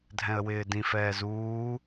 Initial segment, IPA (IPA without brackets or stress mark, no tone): dʱ